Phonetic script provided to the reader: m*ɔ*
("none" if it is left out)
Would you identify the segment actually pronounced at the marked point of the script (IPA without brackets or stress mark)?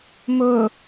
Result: ʊ